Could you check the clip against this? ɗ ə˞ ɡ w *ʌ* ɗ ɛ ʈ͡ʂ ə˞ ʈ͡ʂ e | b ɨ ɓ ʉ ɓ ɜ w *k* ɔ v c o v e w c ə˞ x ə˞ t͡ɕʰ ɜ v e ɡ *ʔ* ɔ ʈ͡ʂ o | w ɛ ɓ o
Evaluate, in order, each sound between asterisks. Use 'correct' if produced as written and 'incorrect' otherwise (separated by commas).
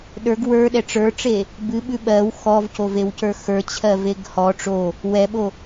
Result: incorrect, incorrect, incorrect